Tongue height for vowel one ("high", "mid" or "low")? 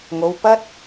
mid